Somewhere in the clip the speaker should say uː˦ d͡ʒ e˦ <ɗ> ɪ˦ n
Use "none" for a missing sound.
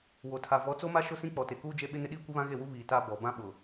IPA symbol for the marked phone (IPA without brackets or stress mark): ɓ